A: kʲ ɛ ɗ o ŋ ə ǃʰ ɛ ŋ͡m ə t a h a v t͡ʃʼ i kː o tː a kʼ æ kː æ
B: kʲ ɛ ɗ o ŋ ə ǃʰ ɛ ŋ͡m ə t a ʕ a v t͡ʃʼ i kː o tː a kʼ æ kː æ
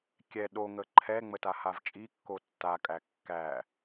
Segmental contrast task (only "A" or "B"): A